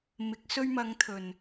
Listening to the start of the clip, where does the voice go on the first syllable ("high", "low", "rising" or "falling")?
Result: rising